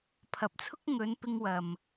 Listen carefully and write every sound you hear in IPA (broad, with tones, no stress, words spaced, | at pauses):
pʰɐ˨˥p̚t͡sʰʊ˥k̚ ŋɵ˨˧n pɪ˧ŋwɐ˨m